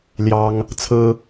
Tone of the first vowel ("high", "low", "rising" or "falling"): high